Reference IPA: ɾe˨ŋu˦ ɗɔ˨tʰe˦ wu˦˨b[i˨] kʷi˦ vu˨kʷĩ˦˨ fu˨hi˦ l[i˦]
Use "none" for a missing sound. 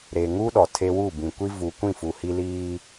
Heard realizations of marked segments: ĩ˨, iː˦

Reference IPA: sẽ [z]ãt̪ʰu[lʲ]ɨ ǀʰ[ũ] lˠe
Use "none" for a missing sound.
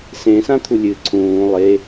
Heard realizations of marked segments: s, lʲ, ũː

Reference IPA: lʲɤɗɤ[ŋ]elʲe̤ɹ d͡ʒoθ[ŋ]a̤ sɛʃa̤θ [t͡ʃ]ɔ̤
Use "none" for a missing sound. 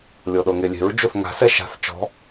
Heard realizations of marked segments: ŋ, ŋ, t͡ʃ

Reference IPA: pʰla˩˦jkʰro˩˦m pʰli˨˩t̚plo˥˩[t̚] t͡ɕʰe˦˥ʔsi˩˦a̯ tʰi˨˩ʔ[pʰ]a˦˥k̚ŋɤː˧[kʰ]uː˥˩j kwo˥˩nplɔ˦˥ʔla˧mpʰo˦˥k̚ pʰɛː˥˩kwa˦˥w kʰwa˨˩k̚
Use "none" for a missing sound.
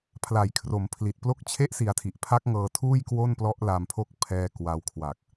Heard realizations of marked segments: k̚, pʰ, tʰ

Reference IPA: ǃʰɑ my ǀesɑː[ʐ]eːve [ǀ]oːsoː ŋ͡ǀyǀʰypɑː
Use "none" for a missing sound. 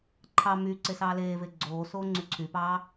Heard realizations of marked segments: l, ɡ͡ǀ

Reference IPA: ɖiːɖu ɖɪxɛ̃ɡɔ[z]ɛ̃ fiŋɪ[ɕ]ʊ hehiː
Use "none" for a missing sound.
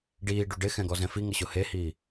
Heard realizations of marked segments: z, ɕ

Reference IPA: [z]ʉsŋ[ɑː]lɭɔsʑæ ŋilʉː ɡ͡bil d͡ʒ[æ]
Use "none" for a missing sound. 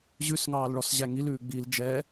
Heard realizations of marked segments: ʑ, ɑː, ɛ

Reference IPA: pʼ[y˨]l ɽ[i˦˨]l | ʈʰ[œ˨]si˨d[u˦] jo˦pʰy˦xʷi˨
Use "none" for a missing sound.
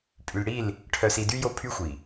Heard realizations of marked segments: y˨, i˦˨, œ˨, y˦

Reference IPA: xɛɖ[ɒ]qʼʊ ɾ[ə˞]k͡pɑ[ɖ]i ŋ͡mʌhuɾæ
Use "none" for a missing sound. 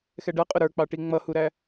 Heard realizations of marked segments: ʌ, ə˞, ʈ

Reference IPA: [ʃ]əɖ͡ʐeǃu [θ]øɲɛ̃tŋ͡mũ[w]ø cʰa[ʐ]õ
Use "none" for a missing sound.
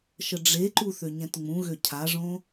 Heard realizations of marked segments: ʃ, θ, ɣ, ʐ

